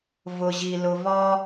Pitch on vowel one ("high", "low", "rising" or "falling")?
low